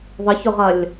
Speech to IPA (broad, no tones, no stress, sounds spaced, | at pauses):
ðˤ ə ç ʊ ʁ ɐ lʲ